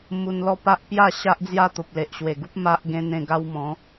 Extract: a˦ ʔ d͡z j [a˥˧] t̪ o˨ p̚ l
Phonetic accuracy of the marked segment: correct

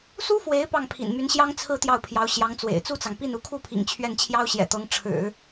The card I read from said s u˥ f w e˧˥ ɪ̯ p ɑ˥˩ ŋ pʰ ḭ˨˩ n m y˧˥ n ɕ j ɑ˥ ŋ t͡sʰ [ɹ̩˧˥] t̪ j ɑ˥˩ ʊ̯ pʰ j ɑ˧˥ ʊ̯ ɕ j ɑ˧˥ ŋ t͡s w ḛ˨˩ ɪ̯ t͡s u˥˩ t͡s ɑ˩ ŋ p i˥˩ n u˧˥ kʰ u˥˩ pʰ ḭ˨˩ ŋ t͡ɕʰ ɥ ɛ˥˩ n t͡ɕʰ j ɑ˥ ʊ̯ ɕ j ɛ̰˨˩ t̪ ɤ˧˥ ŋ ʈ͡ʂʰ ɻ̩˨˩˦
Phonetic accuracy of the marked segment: incorrect: ɹ̩˥˧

